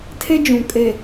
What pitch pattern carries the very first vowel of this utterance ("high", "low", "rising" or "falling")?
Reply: high